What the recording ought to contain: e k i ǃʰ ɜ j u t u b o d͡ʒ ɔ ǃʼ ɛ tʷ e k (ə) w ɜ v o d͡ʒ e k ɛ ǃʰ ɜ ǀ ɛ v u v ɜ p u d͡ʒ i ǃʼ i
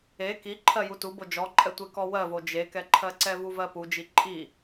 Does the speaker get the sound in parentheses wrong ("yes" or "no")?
yes